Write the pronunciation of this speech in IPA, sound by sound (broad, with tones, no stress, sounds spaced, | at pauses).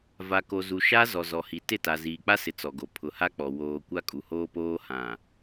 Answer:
v a˨ k o˨ z u˨ ʃ a˦ z ɔ˨ z ɔ˨ h i˨ t ɪ˦˨ t a˨ z iː˨ k͡p a˦ s ɪ˨ t͡s ɔ˨ ɡ o˨ pʰ ʊ˨ h a˦ k͡p ɔ˨ w oː˨ kʷ a˦ kʼ u˨ h oː˦ p oː˦ h ã˨